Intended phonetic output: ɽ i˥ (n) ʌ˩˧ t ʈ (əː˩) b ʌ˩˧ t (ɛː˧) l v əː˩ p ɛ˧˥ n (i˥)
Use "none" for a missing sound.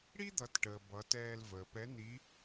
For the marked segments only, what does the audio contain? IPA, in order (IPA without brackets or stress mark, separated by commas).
d̪, əː˩, ɛː˧, i˧˥